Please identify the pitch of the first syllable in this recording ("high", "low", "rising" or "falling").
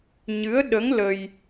rising